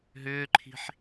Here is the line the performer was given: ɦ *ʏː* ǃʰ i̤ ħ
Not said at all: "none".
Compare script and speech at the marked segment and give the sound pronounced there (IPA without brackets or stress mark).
ʏː